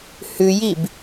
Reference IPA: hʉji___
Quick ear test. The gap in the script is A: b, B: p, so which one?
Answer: A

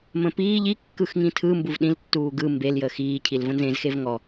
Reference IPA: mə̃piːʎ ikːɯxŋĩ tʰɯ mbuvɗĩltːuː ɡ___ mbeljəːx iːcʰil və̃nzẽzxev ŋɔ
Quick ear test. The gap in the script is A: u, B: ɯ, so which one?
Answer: B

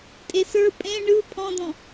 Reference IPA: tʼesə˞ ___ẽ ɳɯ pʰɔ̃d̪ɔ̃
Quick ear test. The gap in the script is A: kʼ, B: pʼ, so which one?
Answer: B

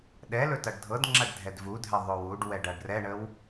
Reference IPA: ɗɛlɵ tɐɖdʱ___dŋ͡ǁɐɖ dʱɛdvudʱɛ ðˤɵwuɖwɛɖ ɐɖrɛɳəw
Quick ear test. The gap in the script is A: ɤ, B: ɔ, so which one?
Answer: A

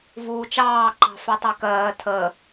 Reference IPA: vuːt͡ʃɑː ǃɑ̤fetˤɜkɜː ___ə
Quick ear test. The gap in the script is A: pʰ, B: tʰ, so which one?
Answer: B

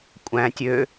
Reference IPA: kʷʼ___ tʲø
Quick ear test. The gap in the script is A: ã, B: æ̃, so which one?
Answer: B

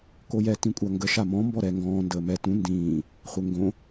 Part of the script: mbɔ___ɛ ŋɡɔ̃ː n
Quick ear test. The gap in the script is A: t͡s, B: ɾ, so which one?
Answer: B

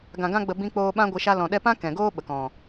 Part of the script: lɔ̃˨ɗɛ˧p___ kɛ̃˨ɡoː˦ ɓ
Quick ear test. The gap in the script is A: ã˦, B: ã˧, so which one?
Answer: A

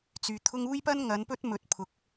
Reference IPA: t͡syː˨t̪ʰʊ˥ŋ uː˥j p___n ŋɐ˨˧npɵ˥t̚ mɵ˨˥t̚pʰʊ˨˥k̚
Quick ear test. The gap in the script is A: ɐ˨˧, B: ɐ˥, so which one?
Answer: B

